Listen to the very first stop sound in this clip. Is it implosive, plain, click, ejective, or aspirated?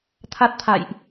aspirated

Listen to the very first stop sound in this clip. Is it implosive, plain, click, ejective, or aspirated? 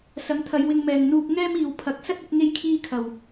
aspirated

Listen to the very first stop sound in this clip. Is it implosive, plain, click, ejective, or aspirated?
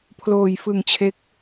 aspirated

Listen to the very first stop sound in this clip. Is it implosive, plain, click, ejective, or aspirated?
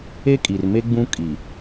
ejective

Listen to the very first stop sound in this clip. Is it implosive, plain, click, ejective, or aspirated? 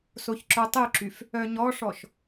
click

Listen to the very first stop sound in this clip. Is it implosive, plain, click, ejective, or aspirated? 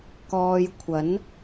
plain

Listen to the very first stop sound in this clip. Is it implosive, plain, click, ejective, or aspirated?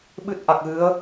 implosive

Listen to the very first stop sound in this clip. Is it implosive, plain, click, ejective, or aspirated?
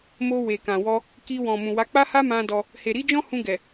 plain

